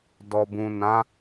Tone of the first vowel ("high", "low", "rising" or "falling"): low